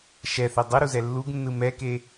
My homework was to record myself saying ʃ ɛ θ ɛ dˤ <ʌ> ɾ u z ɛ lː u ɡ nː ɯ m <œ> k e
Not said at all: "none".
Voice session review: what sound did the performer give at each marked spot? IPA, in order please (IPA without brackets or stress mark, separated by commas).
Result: ʌ, ɛ